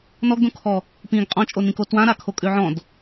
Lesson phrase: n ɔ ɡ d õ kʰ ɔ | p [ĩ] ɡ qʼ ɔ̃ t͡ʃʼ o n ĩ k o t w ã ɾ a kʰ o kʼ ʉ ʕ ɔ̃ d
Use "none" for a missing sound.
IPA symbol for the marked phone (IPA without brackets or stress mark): ĩ